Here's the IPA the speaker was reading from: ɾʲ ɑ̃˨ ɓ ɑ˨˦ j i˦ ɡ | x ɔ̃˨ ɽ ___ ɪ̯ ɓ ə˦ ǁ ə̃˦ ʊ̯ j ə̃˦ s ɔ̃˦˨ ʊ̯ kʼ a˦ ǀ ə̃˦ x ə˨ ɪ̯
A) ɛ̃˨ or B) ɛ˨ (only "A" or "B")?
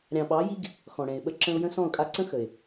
A